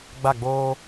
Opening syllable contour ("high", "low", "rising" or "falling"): falling